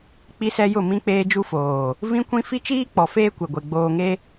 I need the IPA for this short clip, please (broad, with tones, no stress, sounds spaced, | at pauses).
k͡p i˦ s ɛ˦ j ʊ˦˨ m ĩ˦ k͡p eː˦ d͡ʒ u˦ f oː˨ | v ĩ˦ kʷ ĩ˦ f i˦ t͡ʃ iː˦ k͡p ɔ˨ f eː˦ kʷ e˨ ɡʷ e˨ ɡ͡b oː˨ ŋ e˦